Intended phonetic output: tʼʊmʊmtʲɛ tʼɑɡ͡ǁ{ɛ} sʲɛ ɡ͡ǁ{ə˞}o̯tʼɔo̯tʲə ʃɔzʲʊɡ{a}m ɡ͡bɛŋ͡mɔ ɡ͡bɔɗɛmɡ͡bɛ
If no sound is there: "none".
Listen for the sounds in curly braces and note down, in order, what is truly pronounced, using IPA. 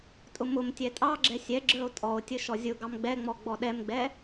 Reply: ɛ, ə˞, ɑ

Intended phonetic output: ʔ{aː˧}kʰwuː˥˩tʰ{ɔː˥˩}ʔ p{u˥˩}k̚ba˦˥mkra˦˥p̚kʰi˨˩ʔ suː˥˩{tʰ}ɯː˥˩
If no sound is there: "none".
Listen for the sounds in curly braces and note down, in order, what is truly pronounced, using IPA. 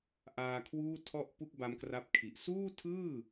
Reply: aː˧, ɔ˥˩, u˥˩, tʰ

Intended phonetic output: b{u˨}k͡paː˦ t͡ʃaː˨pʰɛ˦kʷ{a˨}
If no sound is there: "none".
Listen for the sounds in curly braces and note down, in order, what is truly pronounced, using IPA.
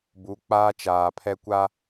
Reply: u˨˦, a˦

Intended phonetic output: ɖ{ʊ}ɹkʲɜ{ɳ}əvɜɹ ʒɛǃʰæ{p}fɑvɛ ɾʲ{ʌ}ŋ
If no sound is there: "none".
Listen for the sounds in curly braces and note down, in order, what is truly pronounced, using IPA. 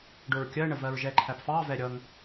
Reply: ʊ, ɳ, p, ʌ

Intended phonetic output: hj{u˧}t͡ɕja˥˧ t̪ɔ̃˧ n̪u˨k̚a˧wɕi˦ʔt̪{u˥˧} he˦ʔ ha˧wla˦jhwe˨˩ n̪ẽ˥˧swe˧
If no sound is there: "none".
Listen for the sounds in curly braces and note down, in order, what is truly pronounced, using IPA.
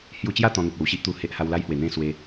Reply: u˧, u˧

